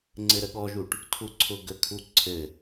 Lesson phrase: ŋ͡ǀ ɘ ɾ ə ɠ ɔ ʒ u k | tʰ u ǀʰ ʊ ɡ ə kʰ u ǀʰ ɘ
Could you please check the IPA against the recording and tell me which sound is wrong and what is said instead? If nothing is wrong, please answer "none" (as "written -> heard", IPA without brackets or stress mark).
k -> ʈ